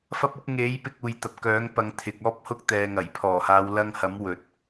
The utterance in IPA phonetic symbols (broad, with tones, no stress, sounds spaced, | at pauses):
f ɐ˥ p̚ ʊ˥ k̚ ŋ e˨˥ j p ɪ˧ k̚ uː˨ j t̪ ɐ˨ p̚ k œː˨˥ ŋ p ɐ˨˧ ŋ t̪ʰ ɪ˨ k̚ ɔː˥ p̚ h ʊ˥ k̚ t̪ ɛː˨ ŋ ɐ˨˩ j pʰ ɔː˨˩ h aː˨˧ w l ɐ˧ ŋ h ɐ˨˥ m w ɵ˨ t̚